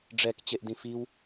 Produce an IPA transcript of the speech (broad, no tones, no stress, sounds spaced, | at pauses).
ɖ͡ʐ ɛ k t͡ɕ e ʔ d ĩ f i w